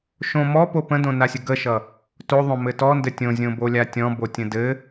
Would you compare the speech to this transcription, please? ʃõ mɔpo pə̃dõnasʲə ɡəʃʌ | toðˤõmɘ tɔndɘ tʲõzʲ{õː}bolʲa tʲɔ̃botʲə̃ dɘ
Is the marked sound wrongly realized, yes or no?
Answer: yes